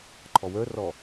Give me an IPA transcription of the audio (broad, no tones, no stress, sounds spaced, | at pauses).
ǃʰ ɔ w ə˞ r ɔ